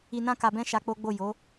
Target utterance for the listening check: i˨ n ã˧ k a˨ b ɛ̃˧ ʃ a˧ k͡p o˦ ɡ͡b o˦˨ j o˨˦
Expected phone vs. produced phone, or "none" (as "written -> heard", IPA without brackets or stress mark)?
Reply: none